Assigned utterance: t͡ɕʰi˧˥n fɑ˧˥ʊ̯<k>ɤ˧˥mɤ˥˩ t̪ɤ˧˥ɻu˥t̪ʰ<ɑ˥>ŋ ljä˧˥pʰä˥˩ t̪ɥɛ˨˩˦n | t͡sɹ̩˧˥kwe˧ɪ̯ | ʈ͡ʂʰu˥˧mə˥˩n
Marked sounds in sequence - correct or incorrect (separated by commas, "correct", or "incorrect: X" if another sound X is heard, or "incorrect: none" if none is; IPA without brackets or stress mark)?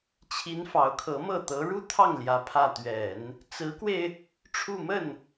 incorrect: kʰ, incorrect: ɑ˥˩